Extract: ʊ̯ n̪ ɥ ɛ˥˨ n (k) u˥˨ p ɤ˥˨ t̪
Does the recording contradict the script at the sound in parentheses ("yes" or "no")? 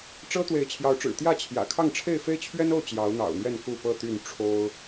no